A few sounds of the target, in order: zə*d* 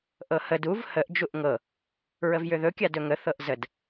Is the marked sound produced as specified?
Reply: yes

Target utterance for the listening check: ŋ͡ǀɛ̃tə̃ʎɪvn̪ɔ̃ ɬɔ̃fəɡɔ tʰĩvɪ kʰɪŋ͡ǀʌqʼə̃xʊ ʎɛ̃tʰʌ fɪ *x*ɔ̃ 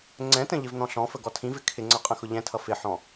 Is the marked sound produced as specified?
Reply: no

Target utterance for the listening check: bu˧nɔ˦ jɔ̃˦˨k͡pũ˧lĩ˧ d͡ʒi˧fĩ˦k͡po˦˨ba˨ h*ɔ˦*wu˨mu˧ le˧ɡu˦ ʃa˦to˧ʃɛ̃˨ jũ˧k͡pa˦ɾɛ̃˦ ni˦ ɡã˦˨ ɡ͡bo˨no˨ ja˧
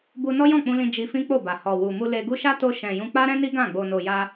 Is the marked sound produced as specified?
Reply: no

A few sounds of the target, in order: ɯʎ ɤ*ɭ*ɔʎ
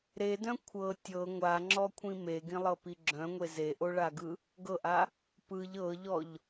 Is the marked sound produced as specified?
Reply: no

